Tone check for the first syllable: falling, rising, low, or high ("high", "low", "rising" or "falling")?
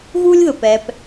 high